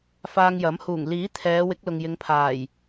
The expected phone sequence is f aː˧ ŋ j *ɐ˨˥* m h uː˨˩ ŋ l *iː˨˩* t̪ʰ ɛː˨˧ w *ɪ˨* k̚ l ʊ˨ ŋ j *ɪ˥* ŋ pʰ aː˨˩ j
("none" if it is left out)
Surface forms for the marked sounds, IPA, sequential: ɐ˨˥, iː˨˥, ɪ˨˥, ɪ˨˧

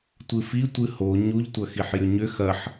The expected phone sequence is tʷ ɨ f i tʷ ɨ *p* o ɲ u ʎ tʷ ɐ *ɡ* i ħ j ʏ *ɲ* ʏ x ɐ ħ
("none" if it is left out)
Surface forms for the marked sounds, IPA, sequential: h, x, ɲ

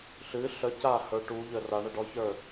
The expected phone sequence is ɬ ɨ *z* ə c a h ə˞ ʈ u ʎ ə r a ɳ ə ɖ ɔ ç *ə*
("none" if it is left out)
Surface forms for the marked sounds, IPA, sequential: ɬ, ə˞

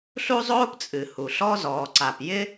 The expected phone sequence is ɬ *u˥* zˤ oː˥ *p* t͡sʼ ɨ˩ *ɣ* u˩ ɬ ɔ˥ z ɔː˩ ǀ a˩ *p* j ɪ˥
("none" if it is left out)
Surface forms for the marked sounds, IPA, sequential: u˥, p, h, p

